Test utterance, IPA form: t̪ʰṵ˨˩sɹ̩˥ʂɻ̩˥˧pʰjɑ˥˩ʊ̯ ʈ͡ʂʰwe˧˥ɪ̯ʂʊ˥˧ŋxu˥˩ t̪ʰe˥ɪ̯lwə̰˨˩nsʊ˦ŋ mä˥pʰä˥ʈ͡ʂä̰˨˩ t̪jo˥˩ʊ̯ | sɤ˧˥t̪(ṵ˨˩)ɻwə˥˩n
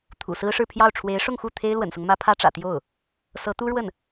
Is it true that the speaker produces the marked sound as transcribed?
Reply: no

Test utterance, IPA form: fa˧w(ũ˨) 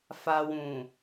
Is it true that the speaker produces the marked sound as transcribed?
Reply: yes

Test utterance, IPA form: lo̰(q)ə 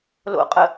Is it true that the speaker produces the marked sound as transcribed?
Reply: no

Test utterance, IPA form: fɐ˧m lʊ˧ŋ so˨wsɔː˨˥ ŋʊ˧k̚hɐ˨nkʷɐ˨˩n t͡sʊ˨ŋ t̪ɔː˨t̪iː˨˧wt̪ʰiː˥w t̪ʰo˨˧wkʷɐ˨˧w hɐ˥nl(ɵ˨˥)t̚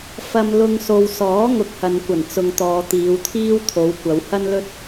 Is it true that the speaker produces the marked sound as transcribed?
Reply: no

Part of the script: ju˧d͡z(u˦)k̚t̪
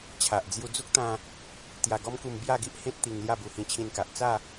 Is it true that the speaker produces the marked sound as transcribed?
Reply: yes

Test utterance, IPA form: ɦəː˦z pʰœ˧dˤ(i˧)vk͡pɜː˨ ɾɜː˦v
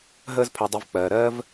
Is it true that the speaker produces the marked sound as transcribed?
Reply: no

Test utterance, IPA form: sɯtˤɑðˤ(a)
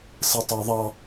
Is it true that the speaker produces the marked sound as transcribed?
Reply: no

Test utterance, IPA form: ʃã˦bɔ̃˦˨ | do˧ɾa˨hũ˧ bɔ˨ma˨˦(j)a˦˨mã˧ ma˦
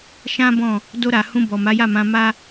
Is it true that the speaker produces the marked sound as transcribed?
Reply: yes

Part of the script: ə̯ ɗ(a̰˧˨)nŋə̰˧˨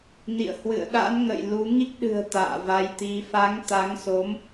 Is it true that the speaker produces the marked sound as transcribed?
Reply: no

